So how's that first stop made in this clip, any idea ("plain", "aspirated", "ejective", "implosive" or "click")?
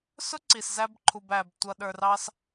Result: click